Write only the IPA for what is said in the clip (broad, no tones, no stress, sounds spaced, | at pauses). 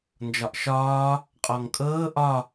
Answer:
n d͡ʒ ɒ ʔ ʃ ɒː | qʼ ɔ ŋ kʼ ɤː ʔ ɒ